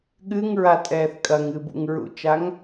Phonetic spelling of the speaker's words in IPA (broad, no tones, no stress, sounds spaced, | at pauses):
ɠ ɨ ŋ ɹ a tʼ ɛː θ kʼ ɐ ŋ ɨː b ṵ ŋ ɹ ṵ t͡ʃ a ŋ